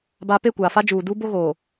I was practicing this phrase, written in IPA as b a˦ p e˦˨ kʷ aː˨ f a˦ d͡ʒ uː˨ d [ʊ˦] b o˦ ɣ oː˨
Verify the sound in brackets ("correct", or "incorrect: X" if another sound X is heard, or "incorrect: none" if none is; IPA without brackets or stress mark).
incorrect: u˦